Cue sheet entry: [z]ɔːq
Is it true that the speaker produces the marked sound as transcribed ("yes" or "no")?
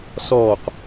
no